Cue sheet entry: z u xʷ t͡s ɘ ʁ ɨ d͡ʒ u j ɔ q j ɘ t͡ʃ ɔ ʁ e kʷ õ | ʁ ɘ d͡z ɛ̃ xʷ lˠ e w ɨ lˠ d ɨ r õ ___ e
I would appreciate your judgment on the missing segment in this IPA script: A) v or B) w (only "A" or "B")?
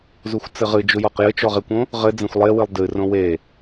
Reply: B